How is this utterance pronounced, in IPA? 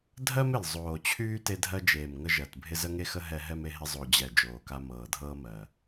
dʱ ɜ˦ m ɪ˨˩ l zˤ oː˨˩ t͡ɕʰ yː˦ t e˦ dʱ ɜ˦ d͡ʒ eː˨˩ m ŋ ə˦ ʒ ɜ˨˩ t bʱ ɪ˦ z ə˦ ŋ e˦ x ə˦ ɦ ɛ˦ ɦ ɛ˦ m e˦ ɦ ɪ˦ zˤ o˨˩ d͡ʑ ɛ˨˩ d͡ʒ oː˨˩ k a˦ m ɤː˨˩ dʱ ɤː˦ m ɜ˨˩

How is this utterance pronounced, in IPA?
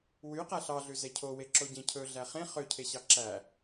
w y q æ ɬ ɑ ɮ ʉ z ɛ cʰ o w e ǁ o ɟ ẽ cʰ ɵ ɮ æ χ ẽ χ ø cʰ e ɕ ɑ ǁ æ

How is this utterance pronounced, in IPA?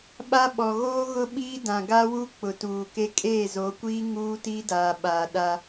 ɓ a˦ ɓ ɔ˨ ɣ oː˦ ɣ ʊ˦ ɓ iː˦ d ã˨ ɡ a˦ w u˦ k͡p ʊ˨ t uː˨ k e˦ kʼ eː˦˨ z o˨˦ kʷ iː˦ ŋ uː˦ t i˦ d aː˨ ɓ aː˨ ɗ a˦

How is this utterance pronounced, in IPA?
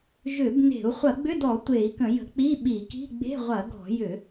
ʒ ʏ˧˩˧ b n e̤˧˩˧ u̯ χʷ ɐ˧˩˧ ɡ͡b ʏ˧˥˧ d ɔ˧˩˧ tʷ e˧˩˧ i̯ k ə̃˧˩˧ j ə̤˧˩˧ k͡p i˧˥˧ ɓ i˧˩˧ k i̤˧˥˧ ɡ͡b e̤˧˥˧ ʁʷ ɐ˧˩˧ ɡ ɔ̤˧˩˧ j ʏ˧˩˧

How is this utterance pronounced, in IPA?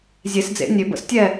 zʲ e˨˩˦ s d͡z ḛ˨˦ nʲ ø˨˩˦ b ə̰˨˩˦ s tʲ ɛ˥˨

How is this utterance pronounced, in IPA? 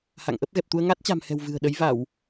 h a̰˧˨ ŋ ʔ ə˦˥ p̚ ɣ ɛ˨˩ p̚ t̪ u˧ ə̯ ŋ a˦˥ t̚ t͡ɕ a̤˨˩ m h ɛ̤˨˩ w v ɨ̤˨˩ ə̯ ɗ ə˨˦ j v a˧˩˨ w

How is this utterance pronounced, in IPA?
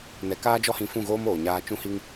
n ɛ˨ k aː˦ d͡ʒ ɔ˦ h ĩ˧ f ũ˦˨ ɣ oː˦ m oː˨ ɲ aː˧ t͡ʃ ũ˦ h i˦ ŋ

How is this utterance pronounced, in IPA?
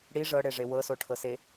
ɽ i ʐ ɤ ɽ e ʐ e w ɤ s o ʈʰ ɤ s e

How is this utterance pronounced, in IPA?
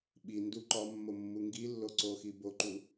ɓ i n d u ǃ ɒ mː o mː u ŋ ɡ i lː o ǀ o x i b o ǃ u

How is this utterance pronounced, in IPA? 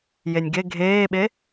j e nʲ ɡ e ɡʱ eː ɓ e

